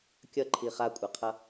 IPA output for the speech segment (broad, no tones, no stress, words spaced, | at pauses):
kʲʌǃʰi χakʷʼaqʰʌ